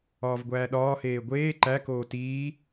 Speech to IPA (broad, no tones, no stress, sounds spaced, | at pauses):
ɒː v ɡʷ æː ɗ ɒː h eː ɡʷ eː ǃ æ k oː t iː